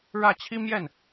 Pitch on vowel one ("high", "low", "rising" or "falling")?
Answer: falling